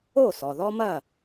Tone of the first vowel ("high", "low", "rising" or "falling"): falling